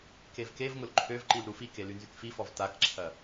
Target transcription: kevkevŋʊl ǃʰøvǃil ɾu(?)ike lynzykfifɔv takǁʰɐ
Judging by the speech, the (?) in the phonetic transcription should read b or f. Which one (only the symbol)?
f